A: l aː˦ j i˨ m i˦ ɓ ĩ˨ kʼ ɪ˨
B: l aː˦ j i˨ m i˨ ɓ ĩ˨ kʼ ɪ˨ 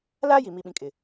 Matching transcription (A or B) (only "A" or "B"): B